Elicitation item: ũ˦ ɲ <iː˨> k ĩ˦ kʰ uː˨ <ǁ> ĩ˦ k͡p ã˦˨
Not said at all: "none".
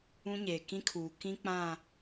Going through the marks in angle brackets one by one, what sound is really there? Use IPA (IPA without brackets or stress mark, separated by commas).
eː˨, k